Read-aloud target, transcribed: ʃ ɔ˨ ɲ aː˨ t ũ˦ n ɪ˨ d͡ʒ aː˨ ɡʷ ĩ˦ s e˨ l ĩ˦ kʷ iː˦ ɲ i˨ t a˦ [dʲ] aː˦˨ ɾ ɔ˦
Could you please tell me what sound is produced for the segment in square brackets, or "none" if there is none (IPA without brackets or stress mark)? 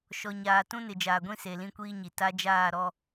d͡ʒ